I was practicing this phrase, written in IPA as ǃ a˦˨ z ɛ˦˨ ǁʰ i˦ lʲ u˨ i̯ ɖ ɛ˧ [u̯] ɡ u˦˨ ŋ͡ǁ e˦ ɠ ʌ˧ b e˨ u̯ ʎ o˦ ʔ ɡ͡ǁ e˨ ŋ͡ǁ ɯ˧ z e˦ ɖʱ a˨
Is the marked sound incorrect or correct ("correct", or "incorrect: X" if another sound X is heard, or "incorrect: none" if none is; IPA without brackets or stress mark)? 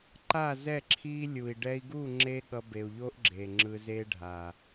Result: incorrect: i̯